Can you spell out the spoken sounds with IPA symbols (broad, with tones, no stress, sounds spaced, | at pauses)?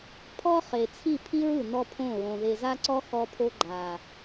pʰ ɔ˦ χ e˨ t͡sʰ i˦˨ pʰ i˦ ɹ ɯ˨ n ɔ˦ pʰ õ˦˨ ɹ õ˨ ð e˨ z a˦ ǀ ɔ˦ x ɔ˦ pʰ o˦ ɡ͡ǃ a˨